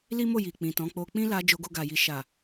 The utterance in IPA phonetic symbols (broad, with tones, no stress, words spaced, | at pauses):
li˦mo˦˨ ji˨k͡pĩ˨tɔ̃˨˦k͡po˧ k͡pĩ˦la˧ d͡ʒo˧ɡo˧ɡa˨ji˨ ʃa˨